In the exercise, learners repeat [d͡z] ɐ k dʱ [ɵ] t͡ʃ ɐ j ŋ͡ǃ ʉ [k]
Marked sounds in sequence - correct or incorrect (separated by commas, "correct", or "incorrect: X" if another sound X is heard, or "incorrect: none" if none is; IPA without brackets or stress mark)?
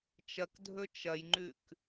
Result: incorrect: t͡ʃ, correct, correct